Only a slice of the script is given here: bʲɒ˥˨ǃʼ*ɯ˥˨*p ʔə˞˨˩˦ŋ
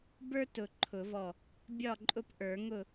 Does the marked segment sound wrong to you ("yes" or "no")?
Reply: yes